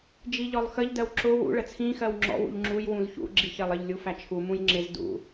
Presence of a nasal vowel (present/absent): present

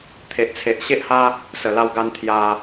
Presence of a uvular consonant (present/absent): absent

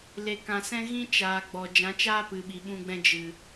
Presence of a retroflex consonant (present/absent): absent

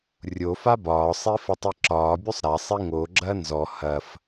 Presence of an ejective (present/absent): absent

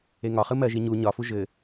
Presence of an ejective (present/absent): absent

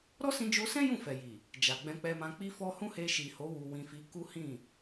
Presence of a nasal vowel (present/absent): present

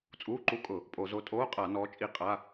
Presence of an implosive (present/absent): absent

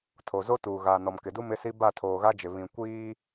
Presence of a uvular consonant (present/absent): absent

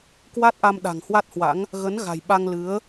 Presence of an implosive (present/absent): present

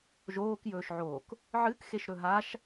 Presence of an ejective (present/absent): absent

